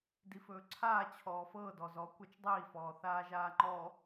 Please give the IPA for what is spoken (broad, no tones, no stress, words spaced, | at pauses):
difɵːǀʰaː t͡ɕʰɔːfɤː dɔzɔ kʷat͡ʃdˤiː fɔːθaːʒaːŋ͡ǃɔ